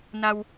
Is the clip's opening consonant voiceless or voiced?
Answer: voiced